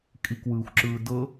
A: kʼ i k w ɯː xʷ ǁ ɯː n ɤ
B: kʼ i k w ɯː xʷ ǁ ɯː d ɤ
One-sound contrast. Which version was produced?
B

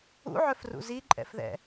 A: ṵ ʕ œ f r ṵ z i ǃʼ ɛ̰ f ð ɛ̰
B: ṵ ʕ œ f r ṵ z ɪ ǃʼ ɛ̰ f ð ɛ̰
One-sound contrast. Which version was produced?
A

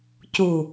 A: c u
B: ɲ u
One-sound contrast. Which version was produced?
A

